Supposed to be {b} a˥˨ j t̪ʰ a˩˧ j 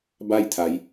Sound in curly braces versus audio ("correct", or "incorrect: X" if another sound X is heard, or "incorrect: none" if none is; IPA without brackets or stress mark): correct